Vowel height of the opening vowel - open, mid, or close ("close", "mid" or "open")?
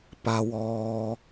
open